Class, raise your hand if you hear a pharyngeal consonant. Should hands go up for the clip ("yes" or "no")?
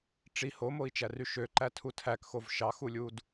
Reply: no